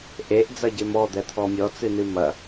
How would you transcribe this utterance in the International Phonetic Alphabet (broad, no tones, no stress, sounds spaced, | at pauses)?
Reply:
ʔ e ʔ d͡z ɐ ɟ e m ɔ d̪ ɛ t̪ʰ ɔ mʲ ɔ t͡s ɨ n ɨ m ɐ